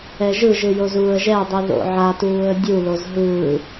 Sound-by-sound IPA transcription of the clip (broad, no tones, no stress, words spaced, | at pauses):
ɛʒɯʒɯjo zuːə̯ʒɛdˤi ðo̰ʕatuːə̯ dʲuloz ɦɯː